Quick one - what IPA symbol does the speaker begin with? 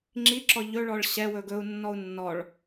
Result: ŋ͡ǁ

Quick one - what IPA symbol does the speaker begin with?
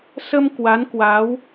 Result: s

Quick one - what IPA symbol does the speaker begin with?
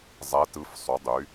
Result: zˤ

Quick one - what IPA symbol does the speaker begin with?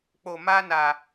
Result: k͡p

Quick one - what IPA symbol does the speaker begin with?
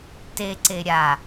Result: t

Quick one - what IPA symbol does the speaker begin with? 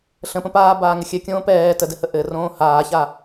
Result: ɬ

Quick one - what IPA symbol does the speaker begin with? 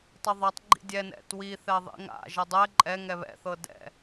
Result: tˤ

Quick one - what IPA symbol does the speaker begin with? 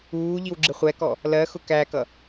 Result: uː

